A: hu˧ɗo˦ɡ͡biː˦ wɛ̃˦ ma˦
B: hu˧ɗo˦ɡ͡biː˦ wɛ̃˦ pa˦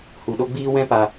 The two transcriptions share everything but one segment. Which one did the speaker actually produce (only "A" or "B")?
B